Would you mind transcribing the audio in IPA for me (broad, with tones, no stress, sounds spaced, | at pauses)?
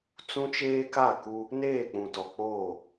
t͡s ũ˦ t͡ʃ eː˦ k a˦˨ k u˦ | n eː˦˨ k͡p ũ˨ t ɔ˨ k͡p oː˦˨